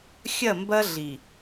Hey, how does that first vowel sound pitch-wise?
falling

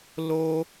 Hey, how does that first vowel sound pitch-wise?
high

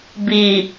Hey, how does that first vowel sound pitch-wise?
low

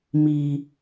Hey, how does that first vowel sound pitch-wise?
high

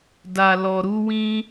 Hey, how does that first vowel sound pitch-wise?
low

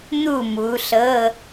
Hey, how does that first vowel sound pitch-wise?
falling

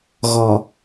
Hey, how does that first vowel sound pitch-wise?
low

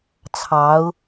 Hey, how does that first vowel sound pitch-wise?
rising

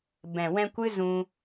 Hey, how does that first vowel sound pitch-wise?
low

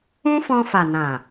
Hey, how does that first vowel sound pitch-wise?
high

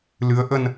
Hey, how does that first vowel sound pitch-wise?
rising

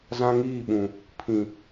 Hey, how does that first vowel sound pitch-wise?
high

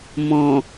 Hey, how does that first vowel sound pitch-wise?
low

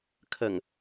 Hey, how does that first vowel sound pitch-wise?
low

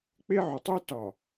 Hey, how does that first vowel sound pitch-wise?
high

